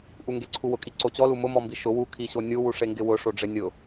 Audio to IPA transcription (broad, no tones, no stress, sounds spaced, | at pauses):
ʔ u ŋ ɡ e ǀʰ u w ʊ kʼ i ǀ o t͡ɕ ɔ l u m ʊ m ɔ m b i ʃ ʊ w u kʰ i ɕ o nʲ u w u ʂ e ŋ ɡ ɪ w ʊ ʂ o ɖ͡ʐ ɪ nʲ ʊ